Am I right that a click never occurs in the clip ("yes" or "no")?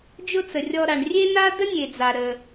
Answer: yes